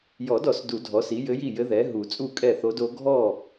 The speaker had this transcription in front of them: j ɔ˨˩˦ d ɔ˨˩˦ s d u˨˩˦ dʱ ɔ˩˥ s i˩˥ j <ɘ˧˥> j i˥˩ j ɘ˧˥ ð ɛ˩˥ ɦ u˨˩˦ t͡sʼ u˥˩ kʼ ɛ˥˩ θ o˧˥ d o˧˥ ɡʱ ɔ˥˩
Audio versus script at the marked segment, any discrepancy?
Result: no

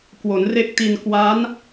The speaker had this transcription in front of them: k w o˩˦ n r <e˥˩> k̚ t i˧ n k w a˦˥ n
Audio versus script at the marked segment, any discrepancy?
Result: no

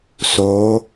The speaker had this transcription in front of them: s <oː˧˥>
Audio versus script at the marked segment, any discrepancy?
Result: no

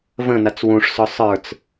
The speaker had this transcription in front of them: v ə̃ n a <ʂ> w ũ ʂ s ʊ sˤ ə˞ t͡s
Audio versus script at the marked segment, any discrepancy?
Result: yes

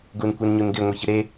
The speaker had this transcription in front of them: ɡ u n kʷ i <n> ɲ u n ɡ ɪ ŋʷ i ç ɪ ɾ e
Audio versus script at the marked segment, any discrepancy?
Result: no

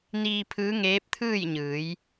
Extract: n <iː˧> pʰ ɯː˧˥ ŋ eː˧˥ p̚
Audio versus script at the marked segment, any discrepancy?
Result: no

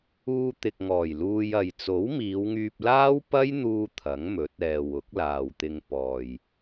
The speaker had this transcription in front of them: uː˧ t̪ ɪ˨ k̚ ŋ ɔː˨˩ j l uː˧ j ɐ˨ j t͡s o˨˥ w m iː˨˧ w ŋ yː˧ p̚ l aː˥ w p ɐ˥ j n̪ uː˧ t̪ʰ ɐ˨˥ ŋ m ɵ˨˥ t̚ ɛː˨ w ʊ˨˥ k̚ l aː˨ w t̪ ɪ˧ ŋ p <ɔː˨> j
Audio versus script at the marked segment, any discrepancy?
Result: no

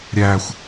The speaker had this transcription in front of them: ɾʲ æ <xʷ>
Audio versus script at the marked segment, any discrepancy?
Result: no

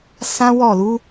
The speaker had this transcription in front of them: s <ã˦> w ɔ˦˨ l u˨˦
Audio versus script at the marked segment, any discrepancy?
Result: no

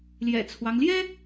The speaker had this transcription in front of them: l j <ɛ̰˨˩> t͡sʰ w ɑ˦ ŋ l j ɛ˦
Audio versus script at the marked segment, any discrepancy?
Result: no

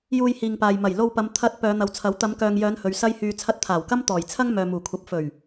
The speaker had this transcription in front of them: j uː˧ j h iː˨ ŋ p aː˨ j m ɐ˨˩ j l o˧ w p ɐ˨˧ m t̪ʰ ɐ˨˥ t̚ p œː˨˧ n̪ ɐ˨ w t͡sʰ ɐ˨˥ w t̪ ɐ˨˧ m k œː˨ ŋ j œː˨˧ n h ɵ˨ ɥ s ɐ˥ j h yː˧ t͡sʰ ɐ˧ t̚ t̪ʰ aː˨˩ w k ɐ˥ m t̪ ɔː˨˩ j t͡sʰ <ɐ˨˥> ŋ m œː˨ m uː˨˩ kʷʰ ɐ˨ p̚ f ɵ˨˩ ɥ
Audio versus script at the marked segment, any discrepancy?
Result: yes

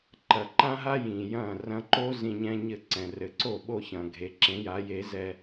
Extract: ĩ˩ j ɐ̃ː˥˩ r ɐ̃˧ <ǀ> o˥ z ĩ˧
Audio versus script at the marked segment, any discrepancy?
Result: yes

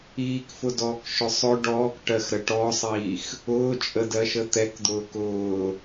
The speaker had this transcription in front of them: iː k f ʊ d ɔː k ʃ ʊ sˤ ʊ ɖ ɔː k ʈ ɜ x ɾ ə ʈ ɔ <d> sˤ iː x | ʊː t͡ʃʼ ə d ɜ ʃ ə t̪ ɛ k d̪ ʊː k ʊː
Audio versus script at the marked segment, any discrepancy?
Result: yes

